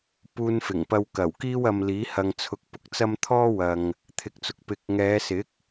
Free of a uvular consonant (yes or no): yes